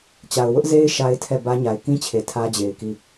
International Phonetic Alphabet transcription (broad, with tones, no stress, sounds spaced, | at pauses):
t͡ɕ a˨ ʊ̯ w ʊ˦ ʔ z e˦ ɪ̯ ʃ a˦ ɪ̯ tʰ ɛ˦˨ b ä˦ ɲ a˨ ɪ̯ k ĩ˦ t͡ɕʰ e˨ tʰ ä˦ d͡ʑ e˨ ɪ̯ k i˦˨